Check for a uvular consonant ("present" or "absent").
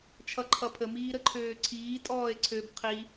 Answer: present